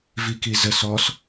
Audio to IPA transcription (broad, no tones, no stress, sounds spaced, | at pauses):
v i k i z ə s ɔ s